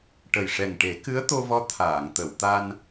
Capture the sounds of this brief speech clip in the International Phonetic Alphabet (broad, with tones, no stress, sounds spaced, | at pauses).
ʈ ə˨˩ j ʂ ɛ˨˩ ŋ ʈ e˨˩˦ k ɨ˧˥ ə̯ t̪ o˧ v ɔ˧˥ t̪ʰ aː˨˩˨ ŋ t̪ ə˨˩˨ w t̪ a˧ n